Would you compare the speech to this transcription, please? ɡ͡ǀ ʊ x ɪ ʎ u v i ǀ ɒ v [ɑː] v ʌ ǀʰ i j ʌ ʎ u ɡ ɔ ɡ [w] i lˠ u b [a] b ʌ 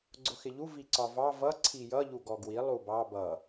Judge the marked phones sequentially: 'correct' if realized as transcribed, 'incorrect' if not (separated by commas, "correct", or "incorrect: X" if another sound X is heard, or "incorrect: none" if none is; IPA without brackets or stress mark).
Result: incorrect: ɑ, correct, incorrect: ɑ